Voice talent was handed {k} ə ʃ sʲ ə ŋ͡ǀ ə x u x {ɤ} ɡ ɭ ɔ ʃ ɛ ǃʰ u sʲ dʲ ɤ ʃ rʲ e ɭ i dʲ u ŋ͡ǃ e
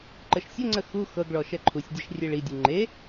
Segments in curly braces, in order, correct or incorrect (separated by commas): incorrect, correct